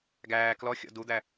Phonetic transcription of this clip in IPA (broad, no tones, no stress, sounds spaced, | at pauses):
ɡ æː k l ɔ xʲ ɔ̰ d u d̪ æ